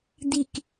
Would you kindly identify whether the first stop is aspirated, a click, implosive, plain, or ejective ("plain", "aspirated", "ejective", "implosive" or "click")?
plain